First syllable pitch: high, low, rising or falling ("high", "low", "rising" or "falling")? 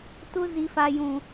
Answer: high